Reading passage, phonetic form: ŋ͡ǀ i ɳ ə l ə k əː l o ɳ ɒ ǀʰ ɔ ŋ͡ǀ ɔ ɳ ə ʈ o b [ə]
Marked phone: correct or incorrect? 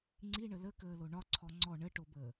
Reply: incorrect